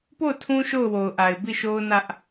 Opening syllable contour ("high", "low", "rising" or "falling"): falling